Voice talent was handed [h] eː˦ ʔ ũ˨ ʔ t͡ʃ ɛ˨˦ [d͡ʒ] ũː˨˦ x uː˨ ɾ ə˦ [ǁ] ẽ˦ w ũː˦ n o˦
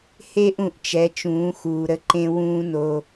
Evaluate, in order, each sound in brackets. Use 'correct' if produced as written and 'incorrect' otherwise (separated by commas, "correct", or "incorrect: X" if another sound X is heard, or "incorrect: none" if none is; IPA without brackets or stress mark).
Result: correct, incorrect: t͡ʃ, incorrect: ǃ